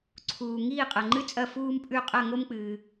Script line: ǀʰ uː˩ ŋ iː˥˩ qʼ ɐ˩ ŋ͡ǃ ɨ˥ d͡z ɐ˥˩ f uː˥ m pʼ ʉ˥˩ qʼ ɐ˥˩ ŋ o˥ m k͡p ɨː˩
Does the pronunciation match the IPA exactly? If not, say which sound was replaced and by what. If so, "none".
d͡z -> t͡sʼ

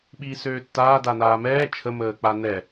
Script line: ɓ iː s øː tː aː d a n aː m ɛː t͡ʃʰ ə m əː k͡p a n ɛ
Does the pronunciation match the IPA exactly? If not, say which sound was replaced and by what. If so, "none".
none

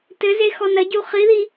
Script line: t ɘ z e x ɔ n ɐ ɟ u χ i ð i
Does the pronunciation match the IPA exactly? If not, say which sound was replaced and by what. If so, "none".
none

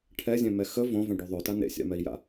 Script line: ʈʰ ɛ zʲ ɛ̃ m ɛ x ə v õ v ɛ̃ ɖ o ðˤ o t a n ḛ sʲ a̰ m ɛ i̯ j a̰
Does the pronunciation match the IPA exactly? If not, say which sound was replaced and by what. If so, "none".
none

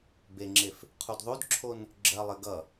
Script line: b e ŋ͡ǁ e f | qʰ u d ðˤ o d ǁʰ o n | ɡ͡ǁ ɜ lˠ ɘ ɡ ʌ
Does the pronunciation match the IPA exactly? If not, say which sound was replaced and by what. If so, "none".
none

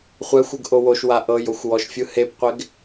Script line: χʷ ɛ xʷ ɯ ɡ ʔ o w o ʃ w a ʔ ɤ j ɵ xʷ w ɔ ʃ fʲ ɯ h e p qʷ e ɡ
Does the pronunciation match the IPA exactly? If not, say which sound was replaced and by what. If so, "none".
ɵ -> o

